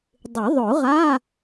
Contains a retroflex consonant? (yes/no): no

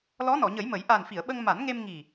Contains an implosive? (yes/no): yes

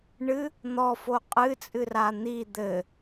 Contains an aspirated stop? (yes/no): no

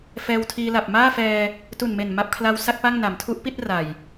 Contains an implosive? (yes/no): no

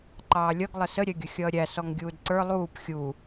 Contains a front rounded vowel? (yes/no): no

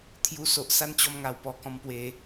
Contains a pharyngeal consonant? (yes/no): no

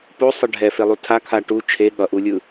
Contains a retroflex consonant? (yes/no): yes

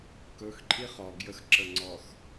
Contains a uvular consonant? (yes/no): yes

